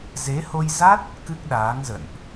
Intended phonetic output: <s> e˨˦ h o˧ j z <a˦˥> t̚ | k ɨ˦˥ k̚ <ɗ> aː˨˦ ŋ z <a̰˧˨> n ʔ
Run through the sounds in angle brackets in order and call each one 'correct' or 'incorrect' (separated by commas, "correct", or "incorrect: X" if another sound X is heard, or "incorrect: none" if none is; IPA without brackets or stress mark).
incorrect: z, correct, correct, incorrect: ə̰˧˨